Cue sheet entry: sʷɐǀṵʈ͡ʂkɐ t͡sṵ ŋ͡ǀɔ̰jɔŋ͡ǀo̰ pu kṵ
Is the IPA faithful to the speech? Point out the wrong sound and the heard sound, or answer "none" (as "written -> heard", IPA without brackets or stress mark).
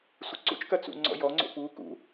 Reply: ʈ͡ʂ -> t͡ʃ